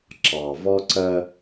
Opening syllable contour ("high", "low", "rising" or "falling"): low